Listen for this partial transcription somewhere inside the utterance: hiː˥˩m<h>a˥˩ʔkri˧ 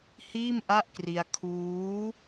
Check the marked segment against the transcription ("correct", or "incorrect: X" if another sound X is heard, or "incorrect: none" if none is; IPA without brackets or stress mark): incorrect: ʔ